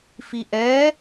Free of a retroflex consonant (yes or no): yes